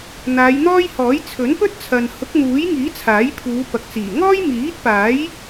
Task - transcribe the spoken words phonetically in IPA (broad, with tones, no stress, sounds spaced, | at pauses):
n̪ aː˨˧ j n̪ ɔː˥ j h ɔː˨˥ j t͡sʰ ɵ˨˥ n p ɵ˥ t̚ t͡sʰ ɐ˨ n h ʊ˨˥ k̚ n̪ uː˨˥ j ŋ iː˨˥ t͡sʰ aː˨˥ j pʰ uː˨˧ p ɐ˨ k̚ t͡s iː˨˩ ŋ ɔː˥ j m iː˨˥ t̚ p aː˨˥ j